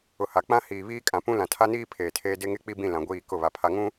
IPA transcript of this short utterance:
ʊ˨ h a˨ k͡p ã˦ h iː˨ β iː˦ kʼ ã˨ p ũ˦ l ã˨ tʰ a˦ n iː˦ pʰ eː˨ tʰ eː˦ d e˦ ŋ e˦ k͡p i˦ b ĩ˦˨ l ã˨ ɡʷ iː˦˨ k ʊ˦˨ β a˨ pʰ a˨ ŋ ũ˦

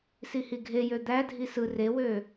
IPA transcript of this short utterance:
s i h i ɡʱ e j ø d̪ æ dʱ i s ɯ r e w øː

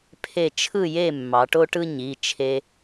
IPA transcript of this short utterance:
pʰ e˥˨ t͡ʃʰ ɯ˥˨ j e˥˨ mː ɑ˩˧ ʈ o˥ ʈ ɯ˥ ɲ i˩˧˩ t͡ʃʰ e˧

